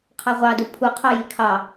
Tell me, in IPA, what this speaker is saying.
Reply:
qʰ ɑ ʁʷ ɑ d u pʰ u qʰ ɑ j i kʰ ɑ

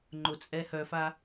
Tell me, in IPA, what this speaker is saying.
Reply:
ŋ͡ǃ ʊ t͡sʼ ɛ h œ f a

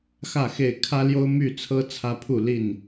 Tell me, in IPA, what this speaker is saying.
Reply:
x ä˥˨ x e˥˨ ɪ̯ kʰ ä˦ l j o˦ ʊ̯ m y˥˨ t͡sʰ ɤ˦ t͡sʰ ä˦ pʰ u˥˨ l i˥˨ n

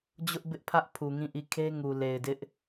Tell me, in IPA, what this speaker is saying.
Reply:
d͡ʑ ʊ˦ ʔ b ɪ˦ ʔ pʰ ä˦ ʔ pʰ u˨ ŋ ĩ˦˨ ʔ i˦˨ kʰ e˦ ŋ u˨ l e˨ ɪ̯ d ɪ˦ ʔ

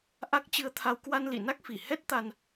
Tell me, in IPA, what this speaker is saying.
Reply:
ʔ a˦˥ k̚ t͡ɕ ɨ˧ ə̯ t̪ʰ a˧ w k w a˧ n l ḭ˧˨ n a˦˥ k̚ f i˧˩ h ɛ˦˥ t̚ t̪ a˧ n

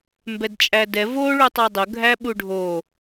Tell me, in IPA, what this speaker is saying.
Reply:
m b ɛ d t͡ʃʼ æ d ɛ v o ɭ u tˤ ɑ dˤ ʊ ɡʱ æ ɓ u ɖʱ o

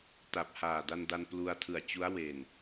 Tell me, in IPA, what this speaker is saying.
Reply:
t a˨˩ p̚ h aː˨˩ d a˧ n d a˧ n p l u˧ a̯ tʰ ɯ˨˩ a̯ t͡ɕ u˦˥ a̯ w e˨˩ n

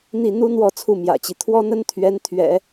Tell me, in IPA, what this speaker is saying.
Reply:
n̪ i˥˩ n̪ u˥ n̪ w ɔ˥˧ t͡sʰ u˥˩ m j ä̰˨˩ t͡ɕ i˦ t̪ʰ w ɔ˥ n̪ ə˥ n t̪ʰ ɥ ɛ˧˥ n t̪ʰ ɥ ɛ̰˨˩˦

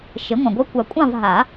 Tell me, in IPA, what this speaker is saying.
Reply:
ʃ e˩˥ ŋʷ ɑ̃˨ ɡʷ ɜ˧˥ kʷ a˨˩˦ kʷʼ ɑ̃˥˨ v ɦ a˨˩˦

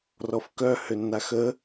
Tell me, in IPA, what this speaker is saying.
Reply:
r ɔ f k œ h ø nː a x ə

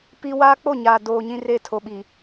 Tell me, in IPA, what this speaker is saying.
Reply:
p i˦ w aː˦ k͡p o˦˨ ɲ aː˨ d oː˨ ɲ ĩ˦ r e˦˨ tʰ o˨ ɓ i˨

